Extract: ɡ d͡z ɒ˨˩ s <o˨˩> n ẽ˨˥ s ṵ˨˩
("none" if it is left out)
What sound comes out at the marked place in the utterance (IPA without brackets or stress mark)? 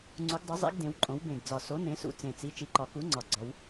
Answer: o˨˥